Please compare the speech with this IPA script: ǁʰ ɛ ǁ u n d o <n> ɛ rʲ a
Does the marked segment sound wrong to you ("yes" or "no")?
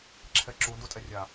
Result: yes